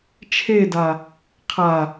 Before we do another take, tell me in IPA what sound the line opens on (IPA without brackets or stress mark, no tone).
t͡ʃʰ